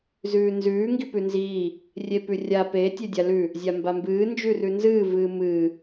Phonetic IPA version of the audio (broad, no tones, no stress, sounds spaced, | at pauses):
z ʉː n z ʉː ŋ ɡ i p ʉ n z iː | rʲ e p ʉ rʲ a p e tʲ e dʲ a l ʉ | zʲ a m b a m b ɨː n d͡ʒ ʉ r ʉ n z ɨː v ɨː m ɨː